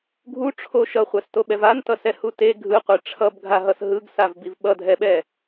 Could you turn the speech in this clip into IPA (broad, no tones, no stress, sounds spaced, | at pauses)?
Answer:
ɡʱ u ʈ͡ʂʰ o ʃ ʌ χʷ a s t o ɓ ɛ v a n t ʌ s ɛ h u t e ɡʱ ɯ qʷ e ʈ͡ʂʰ ʌ b ɡʱ a ɦ ʌ s ɦ ɯ ɡ s a v b i v ɓ ʌ dʱ ɛ ɓ ɛ